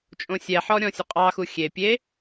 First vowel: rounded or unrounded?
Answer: rounded